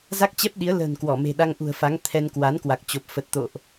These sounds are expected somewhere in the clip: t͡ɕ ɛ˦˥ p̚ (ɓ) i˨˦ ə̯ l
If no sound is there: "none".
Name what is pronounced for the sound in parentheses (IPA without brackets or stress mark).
ɗ